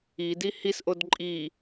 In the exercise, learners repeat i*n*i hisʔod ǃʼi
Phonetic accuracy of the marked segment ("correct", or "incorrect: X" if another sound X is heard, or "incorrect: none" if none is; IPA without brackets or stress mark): incorrect: d